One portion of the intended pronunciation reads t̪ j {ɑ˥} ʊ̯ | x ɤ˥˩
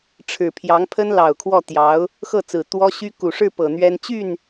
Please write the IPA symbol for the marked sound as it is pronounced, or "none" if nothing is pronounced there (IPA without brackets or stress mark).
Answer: ɑ˧˥